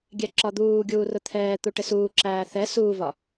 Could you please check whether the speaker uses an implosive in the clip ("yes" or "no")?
no